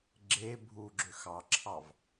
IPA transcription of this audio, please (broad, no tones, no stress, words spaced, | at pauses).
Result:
ɡ͡ǁe bʱu ɡ͡ǁøxɑǁʰɑv